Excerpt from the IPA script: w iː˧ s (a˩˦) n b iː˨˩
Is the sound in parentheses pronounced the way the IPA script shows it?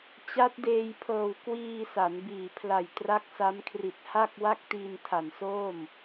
yes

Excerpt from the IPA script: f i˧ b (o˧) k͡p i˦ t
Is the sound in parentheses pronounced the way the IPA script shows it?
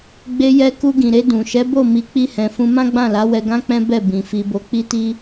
yes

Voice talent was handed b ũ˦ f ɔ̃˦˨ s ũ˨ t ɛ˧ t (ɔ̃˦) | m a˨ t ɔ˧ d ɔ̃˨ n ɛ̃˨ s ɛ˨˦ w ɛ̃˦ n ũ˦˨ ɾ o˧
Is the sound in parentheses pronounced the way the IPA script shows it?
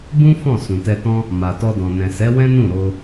yes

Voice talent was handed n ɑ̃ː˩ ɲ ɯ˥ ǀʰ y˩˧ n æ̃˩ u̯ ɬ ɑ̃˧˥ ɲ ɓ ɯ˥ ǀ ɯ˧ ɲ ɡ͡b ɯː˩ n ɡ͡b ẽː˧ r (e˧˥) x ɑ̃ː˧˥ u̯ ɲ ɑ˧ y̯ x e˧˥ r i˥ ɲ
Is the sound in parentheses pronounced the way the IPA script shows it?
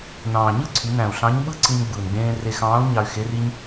no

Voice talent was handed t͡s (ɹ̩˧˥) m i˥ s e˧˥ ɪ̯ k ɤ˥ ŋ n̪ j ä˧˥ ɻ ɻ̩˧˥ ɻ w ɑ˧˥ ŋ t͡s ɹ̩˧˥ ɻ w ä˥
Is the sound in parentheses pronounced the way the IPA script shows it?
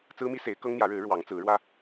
no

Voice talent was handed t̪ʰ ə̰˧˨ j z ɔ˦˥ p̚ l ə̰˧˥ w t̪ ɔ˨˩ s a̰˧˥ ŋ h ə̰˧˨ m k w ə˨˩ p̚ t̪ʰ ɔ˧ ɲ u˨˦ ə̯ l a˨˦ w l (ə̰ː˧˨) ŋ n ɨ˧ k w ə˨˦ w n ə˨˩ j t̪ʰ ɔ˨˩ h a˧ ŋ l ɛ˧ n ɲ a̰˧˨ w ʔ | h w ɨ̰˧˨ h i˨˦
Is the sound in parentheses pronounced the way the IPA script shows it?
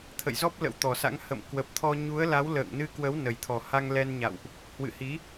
yes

